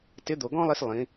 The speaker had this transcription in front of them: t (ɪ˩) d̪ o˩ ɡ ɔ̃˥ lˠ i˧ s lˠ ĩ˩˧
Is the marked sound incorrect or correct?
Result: incorrect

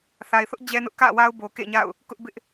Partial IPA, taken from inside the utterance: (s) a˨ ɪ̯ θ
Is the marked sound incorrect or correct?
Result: incorrect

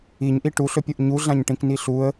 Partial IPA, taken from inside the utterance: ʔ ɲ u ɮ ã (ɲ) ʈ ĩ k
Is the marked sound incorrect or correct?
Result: correct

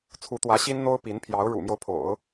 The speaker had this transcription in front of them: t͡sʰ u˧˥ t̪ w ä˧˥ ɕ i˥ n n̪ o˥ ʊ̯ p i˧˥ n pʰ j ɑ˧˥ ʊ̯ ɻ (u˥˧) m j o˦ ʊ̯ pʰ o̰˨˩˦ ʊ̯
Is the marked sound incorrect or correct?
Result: incorrect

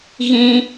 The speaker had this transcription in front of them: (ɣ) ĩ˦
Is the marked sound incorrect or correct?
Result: correct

